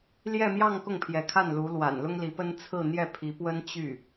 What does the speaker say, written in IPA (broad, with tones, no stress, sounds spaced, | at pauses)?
l j ɛ˥˧ m j ɑ˥˧ ŋ k ʊ˥˩ ŋ pʰ j ɛ˧˥ kʰ a˥˩ n l u˧˥ l w a̰˨˩ n l ʊ˥ ŋ l i˧˥ p ə˥ n t͡sʰ ɹ̩˥˧ n̪ j ɛ˥˩ pʰ i˧˥ p w ə˥ n t͡ɕ y˥˩